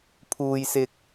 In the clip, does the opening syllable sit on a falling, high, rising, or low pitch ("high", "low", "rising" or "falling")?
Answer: low